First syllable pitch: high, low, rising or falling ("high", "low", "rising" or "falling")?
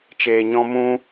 low